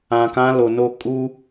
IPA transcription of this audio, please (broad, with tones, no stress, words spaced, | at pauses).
ã˨kã˦lo˨no˦ kʼu˦